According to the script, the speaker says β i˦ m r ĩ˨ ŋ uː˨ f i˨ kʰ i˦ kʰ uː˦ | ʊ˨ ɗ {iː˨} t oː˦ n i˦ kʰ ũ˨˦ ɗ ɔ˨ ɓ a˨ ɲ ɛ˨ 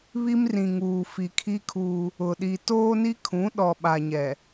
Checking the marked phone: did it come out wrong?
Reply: yes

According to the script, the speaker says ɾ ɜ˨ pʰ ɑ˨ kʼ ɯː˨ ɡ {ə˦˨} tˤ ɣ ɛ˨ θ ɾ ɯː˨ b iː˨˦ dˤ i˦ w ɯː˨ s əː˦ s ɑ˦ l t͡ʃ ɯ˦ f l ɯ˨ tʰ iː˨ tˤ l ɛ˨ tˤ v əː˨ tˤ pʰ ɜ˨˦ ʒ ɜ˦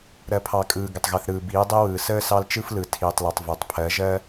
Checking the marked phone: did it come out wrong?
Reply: yes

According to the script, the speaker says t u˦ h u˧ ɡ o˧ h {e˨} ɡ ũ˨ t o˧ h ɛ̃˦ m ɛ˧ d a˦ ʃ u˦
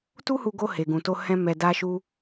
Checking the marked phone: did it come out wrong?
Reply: no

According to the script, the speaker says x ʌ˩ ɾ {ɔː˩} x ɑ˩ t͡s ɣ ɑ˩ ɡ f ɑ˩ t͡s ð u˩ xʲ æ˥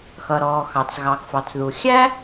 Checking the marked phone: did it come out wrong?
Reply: no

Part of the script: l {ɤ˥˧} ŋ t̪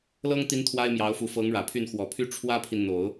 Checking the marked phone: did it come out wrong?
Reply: yes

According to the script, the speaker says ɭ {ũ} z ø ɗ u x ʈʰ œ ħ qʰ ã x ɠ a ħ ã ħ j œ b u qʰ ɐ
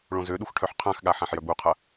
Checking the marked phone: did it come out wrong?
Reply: yes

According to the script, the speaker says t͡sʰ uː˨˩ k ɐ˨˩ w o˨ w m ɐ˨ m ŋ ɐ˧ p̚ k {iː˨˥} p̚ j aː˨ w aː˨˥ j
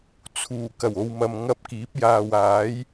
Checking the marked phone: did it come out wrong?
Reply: no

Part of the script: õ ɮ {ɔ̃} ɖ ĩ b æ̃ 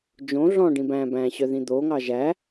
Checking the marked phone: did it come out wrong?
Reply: no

